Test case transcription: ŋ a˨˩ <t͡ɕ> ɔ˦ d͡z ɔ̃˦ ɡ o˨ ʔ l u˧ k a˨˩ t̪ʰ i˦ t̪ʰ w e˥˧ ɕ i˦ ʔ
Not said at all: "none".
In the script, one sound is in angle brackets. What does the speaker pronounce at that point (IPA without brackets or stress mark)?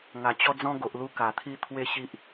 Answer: t͡ɕ